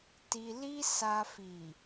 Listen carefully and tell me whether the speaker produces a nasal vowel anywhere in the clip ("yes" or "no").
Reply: no